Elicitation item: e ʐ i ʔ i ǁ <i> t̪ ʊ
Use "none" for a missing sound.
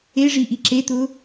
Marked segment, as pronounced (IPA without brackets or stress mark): e